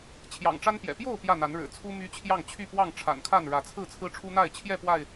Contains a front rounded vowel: yes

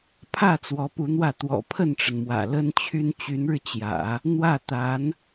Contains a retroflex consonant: yes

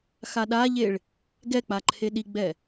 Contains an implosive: yes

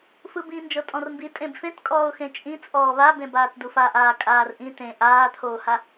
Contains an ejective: yes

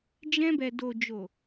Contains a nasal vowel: yes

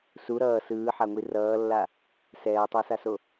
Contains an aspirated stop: no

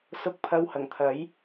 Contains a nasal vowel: no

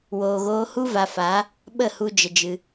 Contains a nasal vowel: no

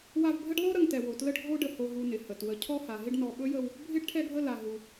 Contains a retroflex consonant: yes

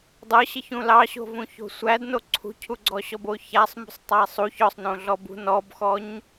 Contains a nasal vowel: yes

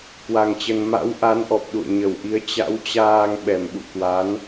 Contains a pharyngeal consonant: no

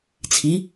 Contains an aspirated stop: yes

